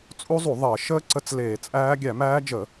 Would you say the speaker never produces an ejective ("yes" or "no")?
no